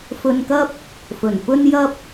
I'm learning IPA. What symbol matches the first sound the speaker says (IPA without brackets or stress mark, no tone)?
f